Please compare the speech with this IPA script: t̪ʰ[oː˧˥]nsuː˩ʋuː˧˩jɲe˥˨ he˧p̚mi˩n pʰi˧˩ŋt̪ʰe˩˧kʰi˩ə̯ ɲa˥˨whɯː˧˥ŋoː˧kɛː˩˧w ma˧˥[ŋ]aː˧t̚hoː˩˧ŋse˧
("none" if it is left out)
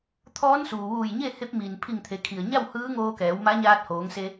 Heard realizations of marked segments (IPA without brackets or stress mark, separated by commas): ɔː˧˥, ɲ